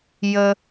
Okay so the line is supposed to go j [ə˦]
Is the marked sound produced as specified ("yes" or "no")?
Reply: no